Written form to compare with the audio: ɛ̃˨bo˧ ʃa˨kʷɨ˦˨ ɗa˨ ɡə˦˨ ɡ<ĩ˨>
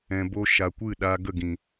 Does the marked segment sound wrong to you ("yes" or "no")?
no